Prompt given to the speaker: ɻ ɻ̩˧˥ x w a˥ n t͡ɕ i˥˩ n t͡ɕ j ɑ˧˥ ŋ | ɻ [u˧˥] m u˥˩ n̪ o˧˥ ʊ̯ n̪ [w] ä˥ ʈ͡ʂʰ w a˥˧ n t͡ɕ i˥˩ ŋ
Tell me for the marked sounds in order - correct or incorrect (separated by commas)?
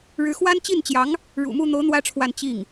incorrect, correct